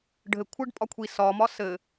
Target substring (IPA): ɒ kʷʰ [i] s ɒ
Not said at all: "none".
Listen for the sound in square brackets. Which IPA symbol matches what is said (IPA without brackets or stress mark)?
i